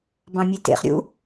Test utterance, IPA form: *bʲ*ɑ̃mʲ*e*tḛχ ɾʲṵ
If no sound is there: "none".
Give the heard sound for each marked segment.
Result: b, e

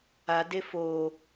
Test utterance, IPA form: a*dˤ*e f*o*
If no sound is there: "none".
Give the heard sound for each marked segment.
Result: d, o

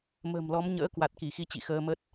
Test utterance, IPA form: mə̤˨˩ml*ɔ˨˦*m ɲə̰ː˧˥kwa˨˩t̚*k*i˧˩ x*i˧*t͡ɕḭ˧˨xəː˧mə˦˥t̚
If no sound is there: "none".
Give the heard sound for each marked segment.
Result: ɔ˨˦, k, i˧

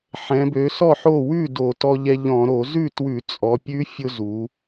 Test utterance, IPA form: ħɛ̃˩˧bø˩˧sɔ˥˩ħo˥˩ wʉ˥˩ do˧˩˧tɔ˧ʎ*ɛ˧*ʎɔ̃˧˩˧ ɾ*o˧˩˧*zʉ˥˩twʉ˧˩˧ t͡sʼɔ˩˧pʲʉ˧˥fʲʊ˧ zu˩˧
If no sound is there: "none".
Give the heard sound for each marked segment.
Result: ɛ˧, o˧˩˧

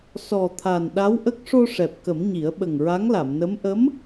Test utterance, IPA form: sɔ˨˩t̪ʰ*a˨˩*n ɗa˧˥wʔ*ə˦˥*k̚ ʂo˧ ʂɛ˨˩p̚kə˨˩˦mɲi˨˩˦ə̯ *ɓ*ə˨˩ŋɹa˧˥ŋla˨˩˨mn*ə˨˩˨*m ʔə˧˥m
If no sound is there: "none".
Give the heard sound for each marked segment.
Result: a˨˩, ə˦˥, ɓ, ə˧˥

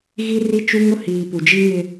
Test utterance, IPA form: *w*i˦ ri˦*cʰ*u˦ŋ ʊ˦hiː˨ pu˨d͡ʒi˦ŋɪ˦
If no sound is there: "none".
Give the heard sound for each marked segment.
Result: ɣ, t͡ʃ

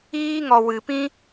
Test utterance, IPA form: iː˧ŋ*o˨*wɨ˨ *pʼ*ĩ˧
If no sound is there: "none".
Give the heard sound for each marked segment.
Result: ɔ˨, p

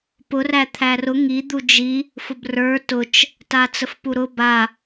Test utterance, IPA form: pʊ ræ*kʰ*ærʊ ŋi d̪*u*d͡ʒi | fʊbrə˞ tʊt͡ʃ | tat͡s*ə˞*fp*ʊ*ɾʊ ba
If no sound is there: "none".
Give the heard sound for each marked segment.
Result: t̪ʰ, u, ə, u

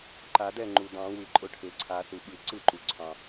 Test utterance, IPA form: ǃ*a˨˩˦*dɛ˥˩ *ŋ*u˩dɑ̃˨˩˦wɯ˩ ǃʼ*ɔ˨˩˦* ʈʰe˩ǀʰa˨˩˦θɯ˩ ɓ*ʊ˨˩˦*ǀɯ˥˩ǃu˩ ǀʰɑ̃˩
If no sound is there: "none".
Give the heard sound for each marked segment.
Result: a˨˩˦, ŋ͡ǃ, ʊ˨˩˦, ɯ˨˩˦

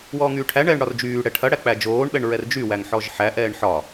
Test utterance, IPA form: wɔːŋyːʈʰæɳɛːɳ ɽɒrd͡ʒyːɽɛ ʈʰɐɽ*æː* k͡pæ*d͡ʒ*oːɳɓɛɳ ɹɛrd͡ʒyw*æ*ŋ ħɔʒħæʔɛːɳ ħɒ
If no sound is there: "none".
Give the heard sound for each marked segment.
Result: æ, d͡ʒ, æ

